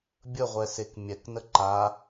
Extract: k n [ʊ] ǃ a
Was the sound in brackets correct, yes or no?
no